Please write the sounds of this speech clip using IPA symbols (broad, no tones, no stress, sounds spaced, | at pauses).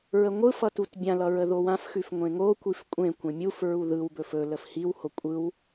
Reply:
ɹ ə ŋʷ ɯ f ʌ t u t bʲ ã l ʌ ɹ ə ð o w ã f x ʉ f ŋʷ ẽ ŋ o kʷ i f kʷʼ ẽ kʷ ẽ mʲ u f ɹ u ð ɯ w b ɵ f ɵ l ə f h i w h o kʷʼ ɯ w